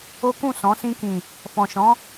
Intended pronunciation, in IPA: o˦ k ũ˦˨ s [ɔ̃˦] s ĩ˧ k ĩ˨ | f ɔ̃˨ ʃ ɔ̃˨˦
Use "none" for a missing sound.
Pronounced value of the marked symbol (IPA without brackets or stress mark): ɔ̃˨˦